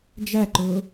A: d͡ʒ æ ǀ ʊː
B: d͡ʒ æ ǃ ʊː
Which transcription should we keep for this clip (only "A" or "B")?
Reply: B